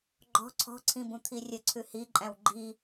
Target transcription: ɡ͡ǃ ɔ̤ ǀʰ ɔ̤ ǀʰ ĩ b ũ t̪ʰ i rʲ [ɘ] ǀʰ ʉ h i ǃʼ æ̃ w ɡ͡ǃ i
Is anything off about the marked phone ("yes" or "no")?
no